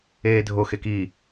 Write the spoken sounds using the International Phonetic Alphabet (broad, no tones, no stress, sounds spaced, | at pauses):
eː dʱ o x e k i